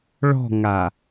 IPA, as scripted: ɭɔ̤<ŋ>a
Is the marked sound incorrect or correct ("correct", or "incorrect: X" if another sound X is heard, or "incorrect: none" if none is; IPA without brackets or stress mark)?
correct